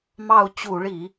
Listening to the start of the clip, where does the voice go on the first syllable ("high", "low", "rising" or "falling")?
falling